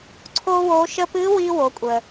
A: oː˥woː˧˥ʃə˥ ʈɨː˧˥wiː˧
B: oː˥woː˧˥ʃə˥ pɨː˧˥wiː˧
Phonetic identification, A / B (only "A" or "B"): B